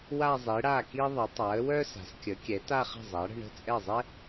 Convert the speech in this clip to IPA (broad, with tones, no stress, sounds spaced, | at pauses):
w a˥˧ zˤ i˩˥ ɽ a˥˩ k i˥ ðˤ ə˩˥ tˤ a˩˥ ə̯ w œ˥ s a̤˩˥ s kʲ ə˩˥ kʲ ɛ˩˥ t a˥˧ χ ə̤˥˩ zˤ a˩˥ ɽ ə̤˥˧ ɳ ə̤˥˩ t͡sʼ ɛ˥˩ zˤ ɛ˥